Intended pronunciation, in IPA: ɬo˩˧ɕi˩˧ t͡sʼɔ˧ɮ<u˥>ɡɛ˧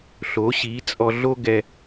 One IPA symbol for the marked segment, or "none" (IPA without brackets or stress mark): o˥